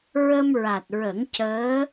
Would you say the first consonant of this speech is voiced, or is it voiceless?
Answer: voiced